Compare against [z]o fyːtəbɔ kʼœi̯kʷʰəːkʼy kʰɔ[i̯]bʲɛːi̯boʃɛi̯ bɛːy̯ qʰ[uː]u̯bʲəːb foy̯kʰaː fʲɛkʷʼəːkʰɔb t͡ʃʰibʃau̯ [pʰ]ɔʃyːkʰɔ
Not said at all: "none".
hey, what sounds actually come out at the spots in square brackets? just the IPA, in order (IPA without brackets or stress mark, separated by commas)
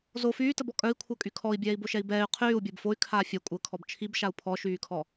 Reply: z, i̯, yː, pʰ